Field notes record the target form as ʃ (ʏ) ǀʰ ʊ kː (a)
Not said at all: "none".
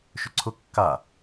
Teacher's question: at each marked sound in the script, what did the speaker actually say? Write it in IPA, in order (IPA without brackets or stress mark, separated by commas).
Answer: ʏ, a